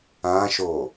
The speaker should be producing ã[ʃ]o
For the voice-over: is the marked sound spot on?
yes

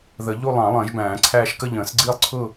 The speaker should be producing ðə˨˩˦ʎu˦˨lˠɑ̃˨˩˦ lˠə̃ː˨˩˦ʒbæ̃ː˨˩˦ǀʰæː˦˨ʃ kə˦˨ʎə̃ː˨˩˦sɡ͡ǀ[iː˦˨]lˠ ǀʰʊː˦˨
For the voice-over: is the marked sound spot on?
yes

